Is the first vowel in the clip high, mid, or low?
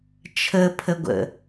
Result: mid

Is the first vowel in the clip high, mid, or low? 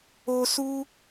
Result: mid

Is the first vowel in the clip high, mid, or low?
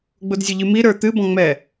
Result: high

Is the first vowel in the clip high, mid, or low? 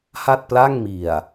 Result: low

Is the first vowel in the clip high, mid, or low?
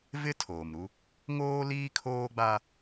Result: high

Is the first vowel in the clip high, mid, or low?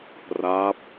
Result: low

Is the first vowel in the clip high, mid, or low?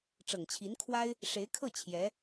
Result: mid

